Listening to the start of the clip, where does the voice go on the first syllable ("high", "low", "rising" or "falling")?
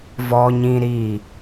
high